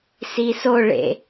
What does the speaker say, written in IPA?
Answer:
s i s o ɭ ḛ

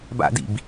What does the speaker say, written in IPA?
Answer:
b a̰ d ḭ b

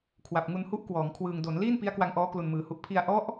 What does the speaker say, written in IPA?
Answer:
kʰ w a˨˩ p̚ ŋ u˧ n h u˦˥ ʔ k w ɔː˩˦ ŋ kʰ w ɯː˨˩ ŋ d o˩˦ n l iː˥˩ n p i˦˥ a̯ k w a˧ ŋ ʔ ɔː˦˥ k l u˨˩ n m ɯː˩˦ h u˨˩ ʔ pʰ i˧ a̯ ʔ ɔ˦˥ ʔ

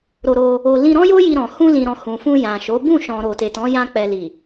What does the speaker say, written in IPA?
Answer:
ɾ o˧ ɾ o˧ | o˧ l ĩ˧ ɾ ɔ̃˦ j o˦ j i˧ ɾ ɔ̃˨ h ũ˧ l ĩ˨ ɾ ɔ̃˨ h ũ˨ f ũ˧ j ã˨ ʃ o˨˦ b ũ˦˨ ʃ ɔ̃˨ ɾ o˨ t e˨ t ɔ̃˨˦ j ã˧ k͡p ɛ˨ l i˨

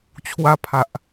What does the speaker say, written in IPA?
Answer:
t͡ɕʰ w a˧ pʰ a˨ ʔ

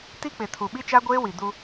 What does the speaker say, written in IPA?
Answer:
t i˦ k͡p ɪ˨ tʰ u˨ ɓ i˦ t͡ʃ a˦ ɡʷ eː˦ w i˨ d u˦

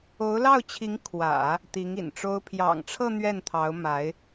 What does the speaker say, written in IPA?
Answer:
o˧˥ ʊ̯ l ɑ˥˩ ʊ̯ t͡ɕʰ i˧˥ ŋ kʰ w ä̰˨˩˦ | t̪ i˧˥ ŋ ḭ˨˩ n ʈ͡ʂ o˥ ʊ̯ pʰ j ɑ̰˨˩ ŋ ʈ͡ʂʰ ɤ˥˧ n̪ ɥ ɛ˥˩ n t̪ʰ ɑ˧˥ ʊ̯ m a˧˥ ɪ̯

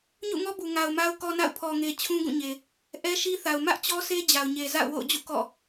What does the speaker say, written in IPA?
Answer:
ɲ ṵ˦˨ ŋ ɔ˦ b u˨ ŋ a˨ ʊ̯ m a˦ ʊ̯ k ɔ˦ n a̰˦˨ ʊ̯ pʰ ɔ˨ ŋ e˨ t͡ɕʰ ũ˦ ɡ ũ˦˨ ɲ e˨ | ʔ ɛ˦ ʃ i˦ θ a˨ ʊ̯ m ä˦ ʔ t͡ɕ ɔ˦ s e˦ d͡ʑ a˨ ʊ̯ ɲ e˨ z a̰˦˨ ʊ̯ w o̰˦˨ ʊ̯ d͡ʑ ṵ˦˨ k ɔ̰˦˨

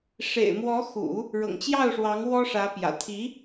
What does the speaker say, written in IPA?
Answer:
ʂ ḛ˨˩ ɪ̯ m w ɔ˧˥ x ṵ˨˩˦ | ɻ ɤ̰˨˩ ŋ t͡ɕ j ɑ˥˩ ʊ̯ ʂ w ɑ˧˥ ŋ w ɔ˥ ʂ ä˧˥ p j ä̰˨˩ t̪ʰ i˧˥

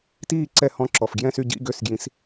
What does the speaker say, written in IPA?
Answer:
t iː˥˩ ǀ ɛ˥˩ h ɔ̃˧˥˧ ǁ ɔ˨˩ f ɡ j ɛ̃˥˩ s y˥˩ ɟ ḭ˧˥˧ ɡ ø˥˩ s ɡ j ĩ˨˥ s

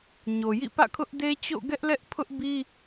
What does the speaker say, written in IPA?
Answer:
ɲ o˨ j ḭ˦˨ p ä̰˦˨ kʰ ʊ˦ ʔ d e˦ t͡ɕ o̰˦˨ ɡ ɛ˦ ʔ l ɛ˦ ʔ pʰ ʊ˦ ʔ b i˦

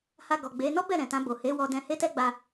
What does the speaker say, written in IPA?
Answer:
h a˧ ɡ ɔ˨ ɡ͡b e˨˦ n ɔ˦ b ɛ˦˨ ɾ ɛ̃˨ t ã˧ b o˨ h e˨˦ w ɔ˧ d ɛ̃˧ h e˦ t ɛ˦ ɡ͡b a˧

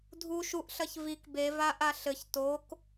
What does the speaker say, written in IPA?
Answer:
dʱ u ʃ u ʔ ɬ ɐ ç v i k b e v a ʔ a ɬ ɘ ç t o k

